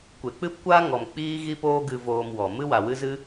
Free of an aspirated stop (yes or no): yes